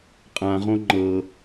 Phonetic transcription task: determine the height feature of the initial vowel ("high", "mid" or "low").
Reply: low